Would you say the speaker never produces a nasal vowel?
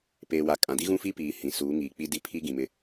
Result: no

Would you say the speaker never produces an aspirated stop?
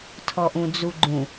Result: no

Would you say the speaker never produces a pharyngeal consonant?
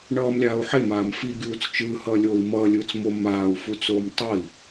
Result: no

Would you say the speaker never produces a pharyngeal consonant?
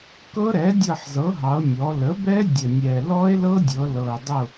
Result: no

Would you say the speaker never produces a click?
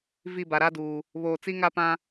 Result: yes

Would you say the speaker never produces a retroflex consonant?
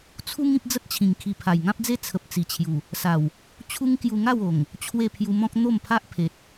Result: yes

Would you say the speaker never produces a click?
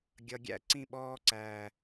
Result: no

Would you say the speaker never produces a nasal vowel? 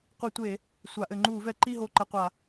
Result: yes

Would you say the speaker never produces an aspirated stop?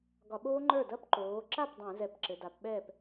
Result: yes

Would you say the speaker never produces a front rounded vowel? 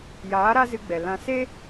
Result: yes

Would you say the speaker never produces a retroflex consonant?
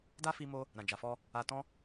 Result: yes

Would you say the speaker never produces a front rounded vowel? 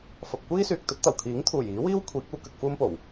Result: no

